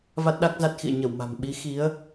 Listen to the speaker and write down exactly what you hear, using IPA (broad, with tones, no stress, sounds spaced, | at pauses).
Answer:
v a˦˥ t̚ ɗ a˦˥ k̚ z a˦˥ t̚ x ḭ˧˨ ə̯ ɲ ə˧˩ w m a̤˨˩ m ɓ i˨˦ x i˨˦ ə̯